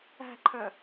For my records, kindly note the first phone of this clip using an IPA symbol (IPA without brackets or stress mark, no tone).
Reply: æ̤